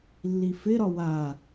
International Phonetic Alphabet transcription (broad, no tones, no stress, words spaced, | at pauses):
lːifɪɾɒ wa